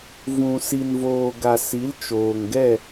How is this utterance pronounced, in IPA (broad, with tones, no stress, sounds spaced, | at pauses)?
v ũ˨ s i˨ n v oː˨ ɡ a˨ s i˨˦ l t͡ʃ oː˨ ŋ ɡ ɛ˦˨